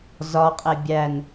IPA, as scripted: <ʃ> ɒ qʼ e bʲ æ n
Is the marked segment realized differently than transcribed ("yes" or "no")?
yes